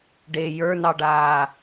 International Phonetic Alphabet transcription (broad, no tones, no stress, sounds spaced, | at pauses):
ɖ e j ə˞ n ɑ ɖ aː